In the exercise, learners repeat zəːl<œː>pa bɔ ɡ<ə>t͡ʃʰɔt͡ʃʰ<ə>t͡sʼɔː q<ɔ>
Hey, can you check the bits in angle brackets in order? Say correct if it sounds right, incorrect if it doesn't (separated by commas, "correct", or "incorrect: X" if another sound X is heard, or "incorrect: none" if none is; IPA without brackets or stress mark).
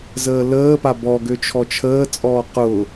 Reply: incorrect: əː, incorrect: ø, incorrect: əː, incorrect: ʊ